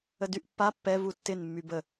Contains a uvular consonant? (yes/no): no